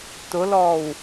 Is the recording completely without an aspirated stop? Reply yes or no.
yes